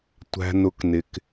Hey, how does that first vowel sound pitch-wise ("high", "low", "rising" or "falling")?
low